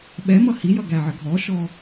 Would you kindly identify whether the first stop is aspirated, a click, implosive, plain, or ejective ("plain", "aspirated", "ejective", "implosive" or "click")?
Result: implosive